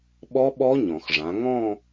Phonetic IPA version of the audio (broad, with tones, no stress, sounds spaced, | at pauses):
ɓ ɔ˦˥ ɓ ɔ˦˥ ɲ ɔ̃˩ x ʐ ã˩˧ ŋ ɔ̃˥˧